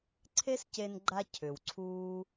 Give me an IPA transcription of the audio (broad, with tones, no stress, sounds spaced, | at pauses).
ǀʰ e˦ s c e˧ n ɡ͡ǃ a˧ cʰ ʏ˨ w ǀʰ uː˦